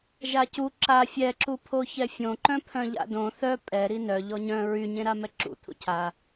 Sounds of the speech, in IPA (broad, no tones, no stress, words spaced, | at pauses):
ʒacu ǁa fʲɛǁu pʰoçɛfʲõǃœ̃ pʰœ̃ʎa̰dõ θœ pʼɛɾi nœʎɔ ɲœ̃ ɹyɲẽɾa mɛǁṵ t̪ʰṵcʰa